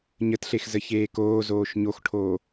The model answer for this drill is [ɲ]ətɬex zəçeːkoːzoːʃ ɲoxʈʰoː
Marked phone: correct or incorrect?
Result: correct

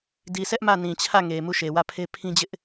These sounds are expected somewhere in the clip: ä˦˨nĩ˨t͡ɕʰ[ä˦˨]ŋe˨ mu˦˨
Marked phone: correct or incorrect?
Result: correct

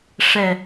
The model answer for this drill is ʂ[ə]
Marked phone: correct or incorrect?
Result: incorrect: ɛ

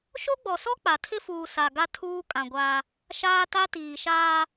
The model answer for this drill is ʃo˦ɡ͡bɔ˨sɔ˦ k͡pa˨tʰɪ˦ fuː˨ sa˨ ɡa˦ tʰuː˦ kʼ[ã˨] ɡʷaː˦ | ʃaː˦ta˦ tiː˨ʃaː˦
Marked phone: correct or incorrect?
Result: correct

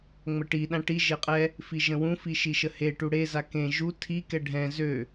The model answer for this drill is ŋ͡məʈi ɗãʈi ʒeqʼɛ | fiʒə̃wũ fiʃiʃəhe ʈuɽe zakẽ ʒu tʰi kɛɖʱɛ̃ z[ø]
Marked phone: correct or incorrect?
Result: correct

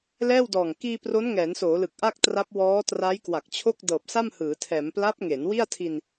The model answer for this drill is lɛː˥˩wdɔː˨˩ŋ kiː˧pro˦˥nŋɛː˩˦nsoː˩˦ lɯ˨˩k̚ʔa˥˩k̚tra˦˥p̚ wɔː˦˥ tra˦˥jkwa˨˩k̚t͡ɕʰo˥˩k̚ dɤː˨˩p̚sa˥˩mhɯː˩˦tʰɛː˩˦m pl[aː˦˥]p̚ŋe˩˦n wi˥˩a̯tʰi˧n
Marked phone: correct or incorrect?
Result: incorrect: a˦˥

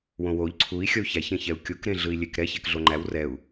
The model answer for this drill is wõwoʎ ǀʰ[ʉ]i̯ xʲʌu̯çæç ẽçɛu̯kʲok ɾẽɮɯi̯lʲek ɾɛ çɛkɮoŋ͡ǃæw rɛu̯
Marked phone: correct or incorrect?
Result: incorrect: u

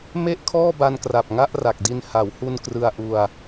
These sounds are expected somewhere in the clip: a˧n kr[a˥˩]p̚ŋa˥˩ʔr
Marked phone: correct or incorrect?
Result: incorrect: a˨˩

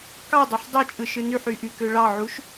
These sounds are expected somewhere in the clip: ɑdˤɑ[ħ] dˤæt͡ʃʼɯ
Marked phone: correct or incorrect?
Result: correct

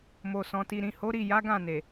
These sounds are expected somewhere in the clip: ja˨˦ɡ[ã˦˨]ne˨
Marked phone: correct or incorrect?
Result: correct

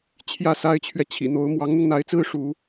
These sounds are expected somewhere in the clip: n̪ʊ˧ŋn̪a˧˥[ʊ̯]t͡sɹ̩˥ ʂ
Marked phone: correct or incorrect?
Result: incorrect: ɪ̯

